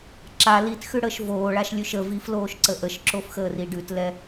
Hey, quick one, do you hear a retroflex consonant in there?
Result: yes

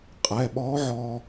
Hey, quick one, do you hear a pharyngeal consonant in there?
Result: yes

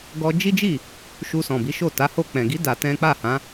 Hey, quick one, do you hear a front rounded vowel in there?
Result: no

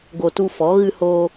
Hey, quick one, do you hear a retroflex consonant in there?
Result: no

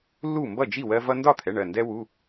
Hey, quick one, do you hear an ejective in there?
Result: no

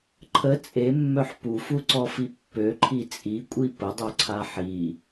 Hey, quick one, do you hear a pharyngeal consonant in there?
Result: yes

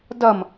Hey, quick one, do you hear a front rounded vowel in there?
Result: no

